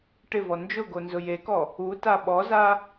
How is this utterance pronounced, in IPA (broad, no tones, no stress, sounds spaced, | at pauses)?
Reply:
ʈ ɪ v ɔ n d͡ʒ ʊ ɡ o n z ʊ j e k ɔ | u t a ɓ ɔ z a